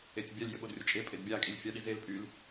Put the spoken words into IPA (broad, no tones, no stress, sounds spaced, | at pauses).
e tʲ bʲ a lʲ j ə ɓ o d rʲ ə t͡ʃʼ e pʼ e d bʲ a kʼ i lʲ fʲ a ɗ i z e l pʼ y l